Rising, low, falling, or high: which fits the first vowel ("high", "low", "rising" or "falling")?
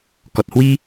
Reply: low